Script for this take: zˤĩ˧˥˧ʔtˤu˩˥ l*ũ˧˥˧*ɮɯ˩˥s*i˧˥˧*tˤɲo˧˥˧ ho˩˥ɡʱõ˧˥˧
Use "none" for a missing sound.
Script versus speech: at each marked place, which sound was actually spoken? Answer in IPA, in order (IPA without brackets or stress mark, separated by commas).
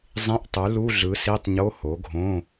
u˧˥˧, i˧˥˧